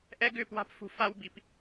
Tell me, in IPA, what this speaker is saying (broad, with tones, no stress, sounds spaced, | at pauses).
ʔ ɛ˦ ɡ ʏː˦˨ p w a̤˦ p f ṳ˧ f a˦ w b i˧ p